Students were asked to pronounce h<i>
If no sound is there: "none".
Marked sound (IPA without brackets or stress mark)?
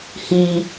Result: i